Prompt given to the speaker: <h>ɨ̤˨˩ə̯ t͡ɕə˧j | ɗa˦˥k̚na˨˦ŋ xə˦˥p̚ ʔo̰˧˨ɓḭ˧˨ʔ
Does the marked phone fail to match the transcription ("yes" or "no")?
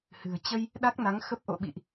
no